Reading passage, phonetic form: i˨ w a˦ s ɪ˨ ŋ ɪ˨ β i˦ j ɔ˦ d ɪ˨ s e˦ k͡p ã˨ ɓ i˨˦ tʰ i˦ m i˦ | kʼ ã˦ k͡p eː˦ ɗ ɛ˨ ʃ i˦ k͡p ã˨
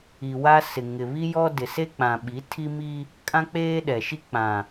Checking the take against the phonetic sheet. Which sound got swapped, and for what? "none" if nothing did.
none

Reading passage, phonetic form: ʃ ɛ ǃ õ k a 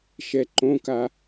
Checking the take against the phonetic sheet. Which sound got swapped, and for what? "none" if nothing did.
none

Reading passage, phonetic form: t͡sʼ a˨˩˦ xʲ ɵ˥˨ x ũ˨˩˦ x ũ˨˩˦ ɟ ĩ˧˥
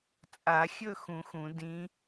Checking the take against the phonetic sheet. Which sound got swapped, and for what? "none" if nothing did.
ɟ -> d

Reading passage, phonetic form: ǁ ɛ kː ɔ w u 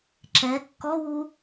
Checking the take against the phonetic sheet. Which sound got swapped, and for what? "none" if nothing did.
none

